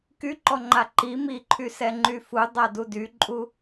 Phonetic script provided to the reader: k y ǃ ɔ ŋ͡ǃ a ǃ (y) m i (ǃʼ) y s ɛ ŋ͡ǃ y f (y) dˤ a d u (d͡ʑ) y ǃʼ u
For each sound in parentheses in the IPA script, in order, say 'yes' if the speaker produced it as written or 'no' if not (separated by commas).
no, no, no, no